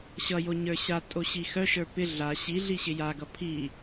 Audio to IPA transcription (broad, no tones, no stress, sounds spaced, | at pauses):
ɕ ʌ j o ɲ ə˞ ɕ a tʼ o ɕ i x œ ʃ ə˞ p ɪ ɮ a ɕ i ɮ i ɕ ɪ j a ɡ ʌ pʰ i